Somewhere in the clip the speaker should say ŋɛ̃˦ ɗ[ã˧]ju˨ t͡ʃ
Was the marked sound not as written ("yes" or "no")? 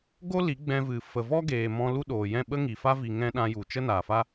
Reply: no